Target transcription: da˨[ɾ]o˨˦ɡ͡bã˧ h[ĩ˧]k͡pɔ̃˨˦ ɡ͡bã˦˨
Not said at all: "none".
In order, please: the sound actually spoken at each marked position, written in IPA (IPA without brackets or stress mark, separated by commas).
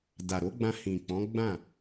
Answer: ɾ, ĩ˨